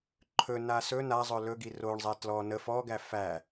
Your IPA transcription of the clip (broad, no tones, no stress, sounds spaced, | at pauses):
ǃʰ ɵ n a s ɵ n a zˤ ɵ l ɵ ɡ i r o ɳ zˤ ɛ t l ɔ n ə f ɔ ɡ æ f æ